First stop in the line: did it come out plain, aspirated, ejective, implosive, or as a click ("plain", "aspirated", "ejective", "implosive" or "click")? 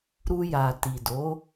plain